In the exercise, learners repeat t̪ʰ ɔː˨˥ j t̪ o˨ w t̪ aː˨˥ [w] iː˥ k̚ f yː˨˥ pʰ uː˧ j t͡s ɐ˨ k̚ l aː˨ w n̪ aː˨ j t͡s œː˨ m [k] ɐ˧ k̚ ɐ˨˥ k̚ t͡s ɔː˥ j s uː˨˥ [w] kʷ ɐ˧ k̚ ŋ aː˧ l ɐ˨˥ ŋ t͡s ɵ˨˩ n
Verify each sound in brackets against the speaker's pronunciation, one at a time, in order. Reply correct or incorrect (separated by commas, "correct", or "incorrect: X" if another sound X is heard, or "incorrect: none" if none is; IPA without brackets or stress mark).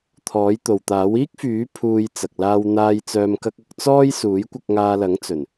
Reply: correct, correct, incorrect: j